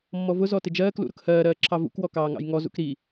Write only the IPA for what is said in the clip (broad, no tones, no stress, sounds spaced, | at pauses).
mː ɔ v ʊ z ɔ t ɪ d͡ʒ ɜː k l ṵ ɾ ʊ k h ɜː ɾ ɜː ǁʰ ɑ v ṵ k w ɔ k ɑː ŋ ɑ̰ j ŋ ɔ z ṵ k ɾ i